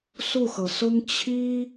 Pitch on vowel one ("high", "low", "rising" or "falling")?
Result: falling